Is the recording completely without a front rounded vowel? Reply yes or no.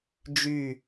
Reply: no